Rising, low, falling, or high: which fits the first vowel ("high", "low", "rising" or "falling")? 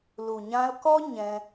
low